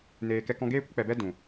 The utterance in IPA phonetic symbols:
neː˧ kɛ˧kɔ̃˧ ɡeː˦kʷə˦k͡pɛ˨ bɛ˦ dũ˨

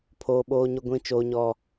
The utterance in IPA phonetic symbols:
pʰoː˦ɓoː˦ɲʊ˦ ɡʷĩ˦t͡ʃoː˦ɲɔ˦

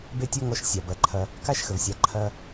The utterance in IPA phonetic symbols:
be˥tʲɔ˥ŋɔ˧˥ʃ sʲa˩bɐ˩˧ǃʰɐ˧ | ka˥ʃxə˩vsʲa˩˧ ǃʰɐ˧

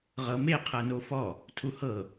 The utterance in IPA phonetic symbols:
ʁɤme qʰɤnofɔ | tʰuhɤ

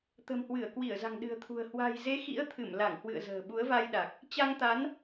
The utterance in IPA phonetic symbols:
t̪ə̤˨˩mhwɨ˧˩ə̯kwi˧˩ə̯za̤˨˩ŋ ɗɨ̤˨˩ə̯t̪ʰṳ˨˩ə̯ hwa̤˨˩jze˨˦ xḭ˧˥ə̯t̪ʰɨ˧˩m la˧˩ŋ hwɨ̰˧˨ə̯zə̤ː˨˩ ɓu˨˦ə̯va˧jɗa˨˩k̚ | t͡ɕa˧ŋ t̪a˨˦n

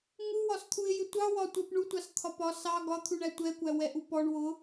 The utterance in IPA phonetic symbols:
ŋuwɒst̪ʰuɪ̯jɪ tʷɑwɒtʷɜp ɳutʷɑst̪ʰɒ pɒ sɑ ɡɒt̪ʰuɳæ tʷɛkʷæ wɛʔupɔɳ wʊ

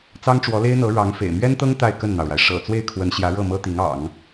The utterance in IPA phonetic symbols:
t͡sɑ˥ŋʈ͡ʂwɔ˧˥le˥ɪ̯n̪ɤ˧˥ ɻɑ˧˥ŋfḛ˨˩ɪ̯ mɥɛ˥nt̪ɤ˥ŋ t̪a˥˧ɪ̯kə˥˩nn̪ɑ˩ʊ̯ɻa˩ɪ̯ ʂɤ̰˨˩ t͡swe˥˩ɪ̯kʰwə˧˥nɕjä˧˥ ɻɤ˥˩mɤ˥t̪i˧˥ŋ ɑ̰˨˩˦ŋ

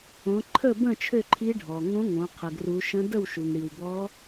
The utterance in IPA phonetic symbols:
õ˩˧ǃʰə˥˩bə̃˥˩ t͡ʃʰø˥˩ǃʰi˧˥ ɖʱɔ˩ŋõ˧˥ŋõ˩˧ qʰə˩ɡru˩˧ʃə̃˧˥ də˥˩wʃu˩ŋɽi˩w bɔ˧˥

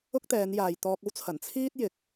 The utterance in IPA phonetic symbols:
ʊ˥k̚t̪ɛː˨˧njaː˨j t̪ɔː˧k̚o˥wt͡sʰɐ˨˩n t͡sʰiː˥t̚jɪ˨˥k̚

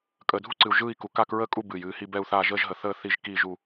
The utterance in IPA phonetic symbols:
kʼəː˨dʱu˥˧ǀɨ˨u̯ ʒɯː˥˧i̯ku˨ kaː˥˧kɹəː˥˧ kʼu˥˧bɨː˨j ɨː˥˧hi˥˧bɛ˥˧u̯θaː˥˧ ʒəː˥˧ʒɦə˨θəː˥˧ θi˥˧ʒkiː˥˧ʒu˥˧

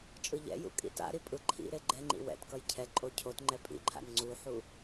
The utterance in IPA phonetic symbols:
t͡ʃʼɯʎɛ̰jṵ kʼḭta̰ɾi pʼɯǃʰḭɾe ɡ͡ǃɛŋ͡ǃḭ wɛ̰tkʌj cʰɛ ǃʼocʰotŋ͡ǃɛ pʼḭǃʰa̰n ŋ͡ǀuħu

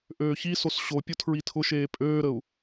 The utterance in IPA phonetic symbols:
ʔøːçisos ɕopʲʊ tʰɹitʰʊʃeː pʼøːɾəu̯

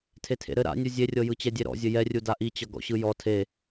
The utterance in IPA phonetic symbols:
tʰetʰḛɾɘ ɾa̰nʲu zʲerʲɤjɯ t͡ɕɛdʲeɾɔ̰zʲɘ jɛrʲuda ʔit͡ɕʌ ɡɔ̰ɕɯjɔ tʰe

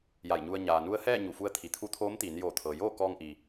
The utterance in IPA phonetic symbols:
ja˧˩jɲu˧ə̯ ɲaː˩nu˧˥ə̯hɛː˥˨ ɲu˧˩fu˧˥ə̯ t̪ʰi˩˧t̪ʰu˧˥t̪ʰoː˧˥m t̪iː˩˧njoː˧˩t̪ʰɤː˩joː˥˨ kɔː˧ŋʔi˩

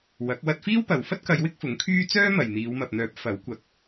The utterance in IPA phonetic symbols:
wɐ˨˥k̚ wɐ˧t̚fiː˥wpɐ˨w fɐ˥t̚kɐ˨˧j wɪ˥k̚fʊ˨˥ŋkʰyː˥ t͡sœː˥mɐ˨jn̪iː˨˧w mɐ˨p̚n̪œː˨˥p̚ fɐ˨˥w kʷɐ˨˥k̚

